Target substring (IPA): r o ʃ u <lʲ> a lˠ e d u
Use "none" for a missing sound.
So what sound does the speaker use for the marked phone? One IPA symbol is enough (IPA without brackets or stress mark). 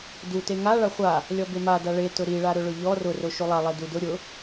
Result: lˠ